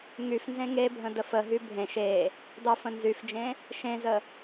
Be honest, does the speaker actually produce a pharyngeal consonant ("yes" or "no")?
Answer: no